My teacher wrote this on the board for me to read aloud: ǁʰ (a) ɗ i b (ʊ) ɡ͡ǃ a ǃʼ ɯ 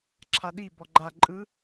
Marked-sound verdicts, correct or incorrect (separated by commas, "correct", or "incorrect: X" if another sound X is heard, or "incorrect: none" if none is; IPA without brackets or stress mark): correct, incorrect: ɔ